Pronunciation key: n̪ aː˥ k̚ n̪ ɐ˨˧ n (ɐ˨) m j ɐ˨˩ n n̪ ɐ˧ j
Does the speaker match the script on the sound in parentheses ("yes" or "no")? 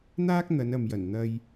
yes